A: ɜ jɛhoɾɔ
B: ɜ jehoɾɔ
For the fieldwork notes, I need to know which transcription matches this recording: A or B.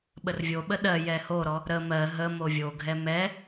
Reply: A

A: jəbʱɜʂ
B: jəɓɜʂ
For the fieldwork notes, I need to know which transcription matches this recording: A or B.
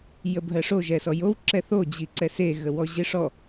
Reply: A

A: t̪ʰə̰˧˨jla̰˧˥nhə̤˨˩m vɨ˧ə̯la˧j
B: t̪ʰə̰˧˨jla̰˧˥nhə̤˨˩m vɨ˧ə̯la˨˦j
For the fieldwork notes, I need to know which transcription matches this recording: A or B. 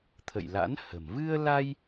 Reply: A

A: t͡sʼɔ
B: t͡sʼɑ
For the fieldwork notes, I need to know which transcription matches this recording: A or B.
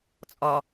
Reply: A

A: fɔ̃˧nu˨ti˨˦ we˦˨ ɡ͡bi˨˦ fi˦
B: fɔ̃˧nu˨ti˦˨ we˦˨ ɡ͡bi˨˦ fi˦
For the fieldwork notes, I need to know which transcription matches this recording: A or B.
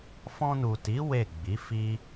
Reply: A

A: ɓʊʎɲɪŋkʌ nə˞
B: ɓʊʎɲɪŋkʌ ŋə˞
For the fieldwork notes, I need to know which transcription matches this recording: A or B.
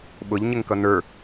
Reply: A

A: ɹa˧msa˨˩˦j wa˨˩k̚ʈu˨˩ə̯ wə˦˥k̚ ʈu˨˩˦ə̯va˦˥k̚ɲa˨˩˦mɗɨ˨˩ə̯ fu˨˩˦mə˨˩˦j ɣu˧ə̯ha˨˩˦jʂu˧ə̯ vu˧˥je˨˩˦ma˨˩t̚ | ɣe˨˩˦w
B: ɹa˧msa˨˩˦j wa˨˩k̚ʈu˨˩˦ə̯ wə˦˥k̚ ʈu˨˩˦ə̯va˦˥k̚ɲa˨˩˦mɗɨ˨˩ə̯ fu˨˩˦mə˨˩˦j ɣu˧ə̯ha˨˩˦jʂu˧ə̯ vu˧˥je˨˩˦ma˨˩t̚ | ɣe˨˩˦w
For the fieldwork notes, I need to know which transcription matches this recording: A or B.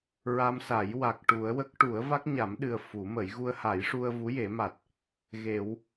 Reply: B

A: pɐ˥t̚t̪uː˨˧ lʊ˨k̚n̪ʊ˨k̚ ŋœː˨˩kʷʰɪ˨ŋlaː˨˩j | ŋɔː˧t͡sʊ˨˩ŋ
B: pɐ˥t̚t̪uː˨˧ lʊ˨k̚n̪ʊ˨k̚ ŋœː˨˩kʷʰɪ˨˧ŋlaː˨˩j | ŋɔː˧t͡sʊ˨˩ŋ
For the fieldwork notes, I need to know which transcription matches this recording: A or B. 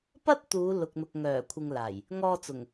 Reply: A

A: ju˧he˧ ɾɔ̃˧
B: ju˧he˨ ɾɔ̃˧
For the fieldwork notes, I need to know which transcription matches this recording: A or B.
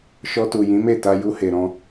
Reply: B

